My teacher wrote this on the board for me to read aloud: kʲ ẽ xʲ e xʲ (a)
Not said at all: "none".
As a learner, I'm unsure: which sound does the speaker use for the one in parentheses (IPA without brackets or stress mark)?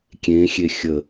ə